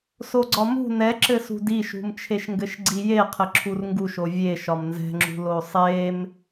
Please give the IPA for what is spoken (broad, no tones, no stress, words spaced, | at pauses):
soɡ͡ǀɒmṳ nɛǁɘsṳd iʃṳmt͡ʃʰeʃŋɡɘʃ ɡ͡ǀijeqʰɘ ǁʰurŋɡuʃo vʲe ʃɒmnzɛ̤ŋ͡ǁṳlo sˤem